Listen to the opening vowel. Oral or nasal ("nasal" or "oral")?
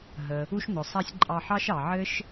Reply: oral